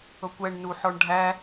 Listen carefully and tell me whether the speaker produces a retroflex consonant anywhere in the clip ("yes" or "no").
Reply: yes